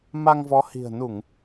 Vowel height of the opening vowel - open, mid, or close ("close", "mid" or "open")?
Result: open